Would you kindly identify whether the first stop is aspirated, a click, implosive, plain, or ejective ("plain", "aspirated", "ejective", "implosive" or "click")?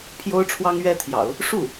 aspirated